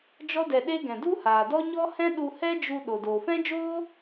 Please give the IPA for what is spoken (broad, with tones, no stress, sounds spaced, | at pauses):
d͡ʒ ɔ˦ d ɛ˧ ɗ e˦ ɡ ɛ̃˨ d u˦ h aː˨ d ɔ˦ ɲ ɔ˦ h ɛ̃˦ ɗ u˧ h ɛ˦ d͡ʒ u˧ ɗ o˨ d oː˨ f ɛ̃˦ d͡ʒ oː˦